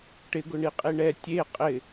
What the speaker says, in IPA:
ʈ ɪ ɡ ʊ ɳ i qʼ i ɳ ɛ tʲ e qʼ ɪ

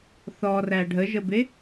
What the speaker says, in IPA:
θ ɔ r æ ɖʱ ə ʒ ə b e

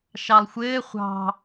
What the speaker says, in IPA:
ʃ ɑ lˠ xʷ ɘː χʷ ɑ̤

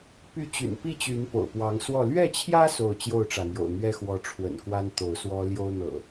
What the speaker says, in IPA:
p y˨˦ t͡ɕ y̰˨˩ n p i˥˨ t͡ɕ y˨˦ n p o̰˨˩ ʊ̯ p w ɑ˨˦ ŋ s w ɔ˥˨ l ɥ ɛ˥˨ t͡ɕʰ j ä˦ s o˥˨ ʊ̯ t͡ɕ j o˥˨ ʊ̯ ʈ͡ʂ ä˩ n̪ j o̰˨˩ ʊ̯ n̪ ɥ ɛ˦ x w ɔ˨˦ ʈ͡ʂʰ w ə̰˨˩ n k w a˦ n t̪ o˨˦ ʊ̯ s w ɔ˦ l j o˦ ʊ̯ n̪ ɤ̰˨˩

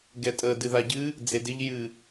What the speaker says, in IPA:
ɡ ɛ tʼ ə d ɨ ð a ɟ ɨ | d͡z e d ɪ ʎ j ɨ

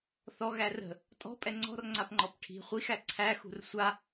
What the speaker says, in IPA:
θ ɔ ɣ æ r ə̤ | tʼ ɔ̤ pʼ ɛ ŋ͡ǀ ɔ̤ r ŋ͡ǀ a p ŋ͡ǃ ɔ p ʈʰ i̤ χʷ i x æ ǀʰ æ x ṳ r sʷ a

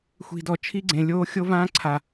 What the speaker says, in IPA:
xʷ i̤˨ d ɔ˨ t͡ʃʰ i˦ ɡ͡ǀ ẽ˨ lʲ oː˦ xʲ o˦ v ãː˦ ǀʰ a˨

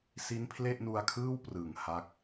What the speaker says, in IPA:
s i˦˥ n pʰ l e˥˩ ʔ n u˧ a̯ kʰ ɯː˥˩ w p r ɯ˨˩ ŋ h a˦˥ k̚

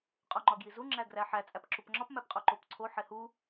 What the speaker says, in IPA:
qʼ o ŋ͡ǃ ɒ ɡ j i z u ŋ͡ǁ æ ɡ r æ ħ æ t͡sʼ æ p ǁ u p ŋ͡ǁ ɒ p m æ p qʼ o ǃ o p ǀʰ o ħ e h u

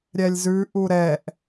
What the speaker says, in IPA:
ɾʲ ɛ lʲ z ʉ ʔ u ɾ ɛ ʔ

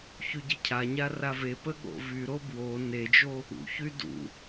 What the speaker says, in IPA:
ç y ɟ ə cʰ a ɲ a r a v e p ə ɠ o̰ v y ɾ o b w o n e d͡ʒ o | ṵ ç y d ṵ

